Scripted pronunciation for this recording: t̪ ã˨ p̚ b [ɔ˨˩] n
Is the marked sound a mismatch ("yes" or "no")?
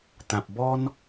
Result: yes